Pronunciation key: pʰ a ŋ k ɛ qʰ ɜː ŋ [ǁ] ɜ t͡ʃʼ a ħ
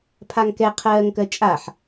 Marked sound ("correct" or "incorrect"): incorrect